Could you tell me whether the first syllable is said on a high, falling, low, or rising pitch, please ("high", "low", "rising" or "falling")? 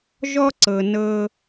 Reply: high